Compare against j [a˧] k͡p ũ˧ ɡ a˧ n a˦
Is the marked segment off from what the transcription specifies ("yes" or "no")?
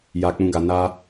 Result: no